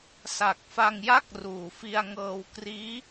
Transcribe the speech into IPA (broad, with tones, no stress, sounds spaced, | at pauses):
s a˨˩ k̚ f a˧ ŋ j a˥˩ k̚ r uː˨˩ f i˧ a̯ ŋ ɤː˧ w k r iː˦˥